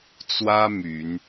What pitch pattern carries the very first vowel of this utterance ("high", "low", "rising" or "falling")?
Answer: high